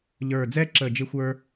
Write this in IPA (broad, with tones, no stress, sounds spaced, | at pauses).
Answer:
ʎ ə˞˧˩ d͡z ɛ˥ ǁ ə˧˩ d͡ʒ ɪ˥ xʷ ə˞˥